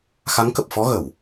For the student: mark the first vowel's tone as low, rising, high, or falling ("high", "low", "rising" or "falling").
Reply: rising